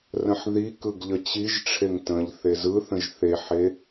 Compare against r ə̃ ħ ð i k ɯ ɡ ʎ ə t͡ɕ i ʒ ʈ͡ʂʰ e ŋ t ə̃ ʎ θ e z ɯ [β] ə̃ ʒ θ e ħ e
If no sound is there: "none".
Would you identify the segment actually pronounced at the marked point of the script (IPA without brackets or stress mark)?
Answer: θ